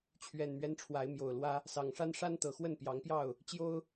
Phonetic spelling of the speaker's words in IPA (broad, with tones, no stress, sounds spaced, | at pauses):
t͡ɕʰ ɥ ɛ˨˩ n m ɥ ɛ˦ n ʈ͡ʂʰ w a˨˦ ɪ̯ m j o˨˩ ʊ̯ l w ä˦ | s ɑ˨˩ ŋ ʂ a˦ n ʂ a˦ n t̪ ɤ˨˩ x w ə˥˨ n p j ɑ˨˦ ŋ p j ɑ˥˨ ʊ̯ | t͡ɕ j o˦ ʊ̯